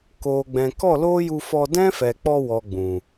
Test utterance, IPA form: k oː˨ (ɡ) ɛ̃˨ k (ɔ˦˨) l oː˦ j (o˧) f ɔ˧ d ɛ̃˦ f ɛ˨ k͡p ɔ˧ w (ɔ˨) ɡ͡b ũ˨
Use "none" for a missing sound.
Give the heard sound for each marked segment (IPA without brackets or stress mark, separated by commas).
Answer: ɡ͡b, ɔ˦˨, u˧, ɔ˨